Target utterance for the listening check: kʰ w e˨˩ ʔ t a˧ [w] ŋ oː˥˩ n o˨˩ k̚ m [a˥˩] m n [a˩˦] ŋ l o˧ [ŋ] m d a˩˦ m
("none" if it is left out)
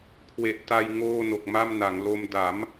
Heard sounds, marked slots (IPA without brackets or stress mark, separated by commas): j, a˥˩, a˩˦, none